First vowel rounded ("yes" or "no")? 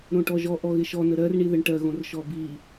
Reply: yes